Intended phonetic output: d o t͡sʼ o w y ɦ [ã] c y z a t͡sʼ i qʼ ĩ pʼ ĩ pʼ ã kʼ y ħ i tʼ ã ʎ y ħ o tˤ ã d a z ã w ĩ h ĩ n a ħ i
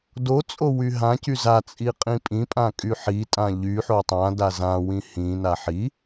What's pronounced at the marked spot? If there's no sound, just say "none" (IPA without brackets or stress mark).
ã